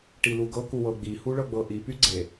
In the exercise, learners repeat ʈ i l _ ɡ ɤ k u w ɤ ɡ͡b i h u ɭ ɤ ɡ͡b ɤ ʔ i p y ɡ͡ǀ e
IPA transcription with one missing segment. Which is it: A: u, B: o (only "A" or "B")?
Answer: A